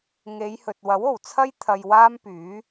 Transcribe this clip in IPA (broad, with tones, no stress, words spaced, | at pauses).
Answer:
ŋe˨˧jhɵ˨t̚ wɐ˨˥wo˨˩wt͡sʰɐ˥j t̪ʰɐ˧jwaː˥mpyː˨˥